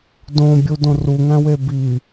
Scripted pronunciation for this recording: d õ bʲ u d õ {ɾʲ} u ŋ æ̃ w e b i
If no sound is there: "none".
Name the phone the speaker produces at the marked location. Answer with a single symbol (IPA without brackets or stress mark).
r